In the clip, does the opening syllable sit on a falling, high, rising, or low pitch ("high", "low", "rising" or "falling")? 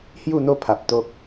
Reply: falling